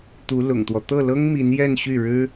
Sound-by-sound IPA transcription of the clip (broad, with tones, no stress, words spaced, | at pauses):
t̪u˧˥lʊ̰˨˩ŋt̪wɔ˦ t̪ɤ˥˩lɤ˥ŋmi˧˥n jɛ˥˧nɕy˥˩ɻɻ̩˥